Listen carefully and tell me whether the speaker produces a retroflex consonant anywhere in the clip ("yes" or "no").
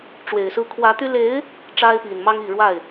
yes